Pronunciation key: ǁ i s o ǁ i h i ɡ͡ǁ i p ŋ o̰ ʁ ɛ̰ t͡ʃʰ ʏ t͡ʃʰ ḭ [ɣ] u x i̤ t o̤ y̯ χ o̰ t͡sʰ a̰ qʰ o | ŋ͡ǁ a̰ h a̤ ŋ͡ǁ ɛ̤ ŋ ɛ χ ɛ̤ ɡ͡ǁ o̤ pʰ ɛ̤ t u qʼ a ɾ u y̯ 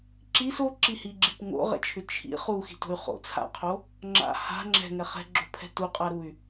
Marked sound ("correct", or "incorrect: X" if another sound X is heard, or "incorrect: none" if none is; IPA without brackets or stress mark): incorrect: χ